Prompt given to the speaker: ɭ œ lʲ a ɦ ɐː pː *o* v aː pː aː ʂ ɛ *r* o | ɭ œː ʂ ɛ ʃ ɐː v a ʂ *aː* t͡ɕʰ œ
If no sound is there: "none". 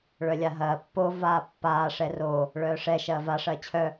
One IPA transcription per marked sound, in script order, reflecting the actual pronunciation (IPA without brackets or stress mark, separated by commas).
o, r, ɐː